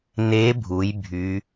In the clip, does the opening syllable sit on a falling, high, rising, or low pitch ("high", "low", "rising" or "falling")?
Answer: rising